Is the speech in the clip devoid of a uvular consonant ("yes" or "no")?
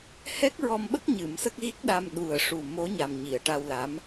yes